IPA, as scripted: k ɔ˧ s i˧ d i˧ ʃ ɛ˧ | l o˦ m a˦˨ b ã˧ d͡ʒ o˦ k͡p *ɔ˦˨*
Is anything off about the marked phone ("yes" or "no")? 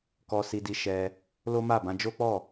no